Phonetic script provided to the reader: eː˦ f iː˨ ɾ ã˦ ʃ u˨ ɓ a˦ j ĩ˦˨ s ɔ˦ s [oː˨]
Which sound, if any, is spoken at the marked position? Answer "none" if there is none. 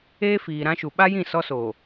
oː˨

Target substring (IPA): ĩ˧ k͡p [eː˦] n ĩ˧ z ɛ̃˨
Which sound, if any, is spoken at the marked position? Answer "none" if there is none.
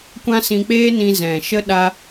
eː˦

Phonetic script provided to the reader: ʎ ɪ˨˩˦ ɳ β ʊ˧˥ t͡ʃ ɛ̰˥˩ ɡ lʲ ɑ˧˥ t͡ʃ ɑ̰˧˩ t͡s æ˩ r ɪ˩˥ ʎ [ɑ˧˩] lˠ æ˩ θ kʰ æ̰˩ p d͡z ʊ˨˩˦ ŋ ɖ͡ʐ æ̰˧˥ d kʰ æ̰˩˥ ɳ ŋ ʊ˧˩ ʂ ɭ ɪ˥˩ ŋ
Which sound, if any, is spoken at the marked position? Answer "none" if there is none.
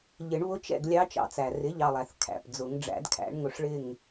ɑ˧˩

